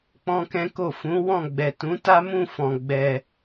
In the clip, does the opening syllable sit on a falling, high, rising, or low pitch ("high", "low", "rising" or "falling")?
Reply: high